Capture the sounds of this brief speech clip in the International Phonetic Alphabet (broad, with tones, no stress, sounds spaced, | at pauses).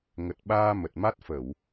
ŋ ə˨˩ t̚ ɓ aː˧ m ə˨˩ t̚ m a˦˥ t̚ f ə˧˩˨ w